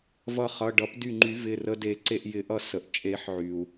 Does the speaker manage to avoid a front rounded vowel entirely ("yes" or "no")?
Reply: no